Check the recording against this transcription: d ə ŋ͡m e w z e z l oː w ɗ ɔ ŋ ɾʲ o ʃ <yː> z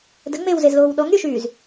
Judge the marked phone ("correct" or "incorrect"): correct